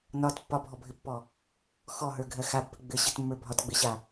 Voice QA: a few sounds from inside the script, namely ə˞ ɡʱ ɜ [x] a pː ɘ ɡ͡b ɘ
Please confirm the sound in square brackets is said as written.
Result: yes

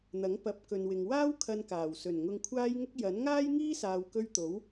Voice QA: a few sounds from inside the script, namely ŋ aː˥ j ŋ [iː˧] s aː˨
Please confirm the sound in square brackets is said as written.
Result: no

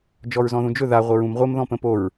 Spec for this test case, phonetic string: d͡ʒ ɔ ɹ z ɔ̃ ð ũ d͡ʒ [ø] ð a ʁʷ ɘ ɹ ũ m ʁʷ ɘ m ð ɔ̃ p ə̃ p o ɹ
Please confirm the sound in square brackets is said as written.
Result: no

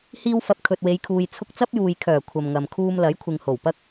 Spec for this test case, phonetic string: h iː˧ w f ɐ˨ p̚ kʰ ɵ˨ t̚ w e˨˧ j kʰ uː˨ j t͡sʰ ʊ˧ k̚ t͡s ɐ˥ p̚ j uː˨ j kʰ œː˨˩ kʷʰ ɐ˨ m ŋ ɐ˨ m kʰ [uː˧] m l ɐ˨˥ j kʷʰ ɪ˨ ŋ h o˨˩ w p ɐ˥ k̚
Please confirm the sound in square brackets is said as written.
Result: yes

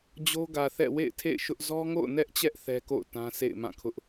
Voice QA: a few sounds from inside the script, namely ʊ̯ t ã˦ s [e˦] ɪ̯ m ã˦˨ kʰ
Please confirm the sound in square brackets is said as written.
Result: no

